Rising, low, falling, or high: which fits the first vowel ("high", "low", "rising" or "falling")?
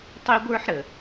high